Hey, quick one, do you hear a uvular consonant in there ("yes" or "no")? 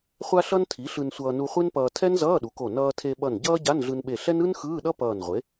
yes